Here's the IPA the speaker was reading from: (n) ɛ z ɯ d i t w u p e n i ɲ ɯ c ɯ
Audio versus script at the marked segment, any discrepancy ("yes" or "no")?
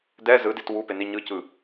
yes